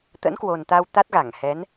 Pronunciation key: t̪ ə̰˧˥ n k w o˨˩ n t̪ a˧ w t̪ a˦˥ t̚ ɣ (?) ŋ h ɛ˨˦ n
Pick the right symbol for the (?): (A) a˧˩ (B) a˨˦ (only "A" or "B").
A